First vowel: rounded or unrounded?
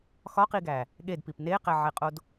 rounded